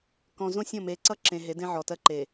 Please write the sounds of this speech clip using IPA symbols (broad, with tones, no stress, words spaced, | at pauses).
kɔ̃˨zõ˦sʲɔ̃˦˨ me˨˦ǀʌ˦ǁẽ˨ ɦe˨˦dẽ˦ʕɔ˨ tɜ˦ǃe˨